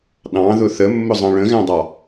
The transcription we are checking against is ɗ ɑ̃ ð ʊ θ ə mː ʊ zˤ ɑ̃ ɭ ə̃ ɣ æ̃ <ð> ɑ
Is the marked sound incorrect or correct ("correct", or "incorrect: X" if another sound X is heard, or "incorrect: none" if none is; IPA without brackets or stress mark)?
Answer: incorrect: dˤ